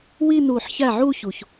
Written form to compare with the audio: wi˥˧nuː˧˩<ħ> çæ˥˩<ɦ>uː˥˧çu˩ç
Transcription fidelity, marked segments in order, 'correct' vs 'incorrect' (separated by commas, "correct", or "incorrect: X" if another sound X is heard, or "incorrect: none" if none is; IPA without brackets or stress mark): correct, incorrect: ʕ